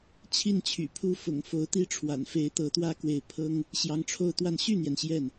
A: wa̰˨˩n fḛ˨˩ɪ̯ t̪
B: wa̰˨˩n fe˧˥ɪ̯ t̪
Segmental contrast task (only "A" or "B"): B